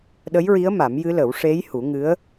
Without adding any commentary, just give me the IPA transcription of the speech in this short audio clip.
ɗə˧˥jɹi˧˥ə̯ ma˨˩˦mjɨ˧˥lə˨˩˦w ʂe˧˥j hu˨˩˦ŋɨ˧˥ə̯

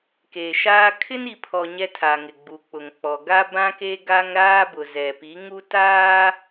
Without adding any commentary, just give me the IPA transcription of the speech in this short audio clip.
ke˨ʃaː˦ kʰɪ˦ni˨pʰɔ˨ ɲɛ˦tʰa˨ŋɪ˨ ɡ͡bu˨k͡pʊ˨ŋk͡pɔ˨ ɡa˦bã˦ke˦ ɡa˦ŋ ɾaː˦bʊ˨zɛ˨pi˨˦ ŋu˦taː˦

